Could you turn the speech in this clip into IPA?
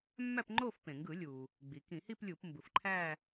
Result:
mː æ˥˧ p ŋ͡ǃ o˥˧ f p ẽ˩ ŋ ɡ ɯ˧˩˧ lʲ u˩ | ɡ͡b i˩ k ĩ˧˩˧ h i˥˧ p lʲ u˧˩˧ p m b ɯ˩ f ǃʰ æ˥˧

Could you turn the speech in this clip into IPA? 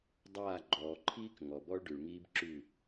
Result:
dˤ aː˦˨ ɡ͡ǃ ɔː˨ ǃʰ iː˦ k ŋ ɔ˨ b ɔ˦ ɭ ɖ ʉ˨ ɭ ŋ iː˦ b ǁ ʉ˦˨

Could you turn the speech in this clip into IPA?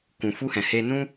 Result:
k ũ˨ f u˧ h ɛ̃˨ h e˧ n ũ˦

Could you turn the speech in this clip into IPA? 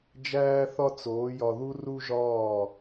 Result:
d͡ʒ æː˦ θ ɒ˦ t͡s oː˨˦ j ɒ˧ ð u˦ r u˦ ʒ ɒː˦˨

